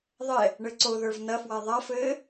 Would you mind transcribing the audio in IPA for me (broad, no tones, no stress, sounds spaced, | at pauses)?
ðˤ ɛ | ɳ ɘ ǀ o ð ə˞ v n ɐ f w a ðˤ a f ɘː